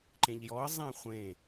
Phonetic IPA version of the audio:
ǃẽʎjɔə̯ zˤẽχʷẽ

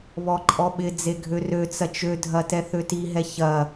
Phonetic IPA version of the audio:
βɔǃʼɔɓɪd͡ze ɡʱørøt͡sɐ t͡ʃødʱɐ tɛθøtiɦɛ çɐ

